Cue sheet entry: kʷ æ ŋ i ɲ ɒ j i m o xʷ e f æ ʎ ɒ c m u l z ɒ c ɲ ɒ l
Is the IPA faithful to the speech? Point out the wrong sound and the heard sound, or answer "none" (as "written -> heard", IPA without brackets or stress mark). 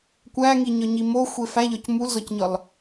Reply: j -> ɲ